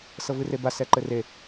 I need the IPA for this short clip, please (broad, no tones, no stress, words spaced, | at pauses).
sɤvɨreba sɛǃɘre